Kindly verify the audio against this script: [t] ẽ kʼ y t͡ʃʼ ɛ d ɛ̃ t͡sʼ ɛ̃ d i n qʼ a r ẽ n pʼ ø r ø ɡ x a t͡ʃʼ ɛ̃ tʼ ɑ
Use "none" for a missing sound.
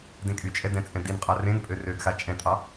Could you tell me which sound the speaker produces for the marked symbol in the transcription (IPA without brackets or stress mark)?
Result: d